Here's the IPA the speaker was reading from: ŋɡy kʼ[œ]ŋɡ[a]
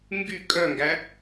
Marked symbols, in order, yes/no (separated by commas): yes, no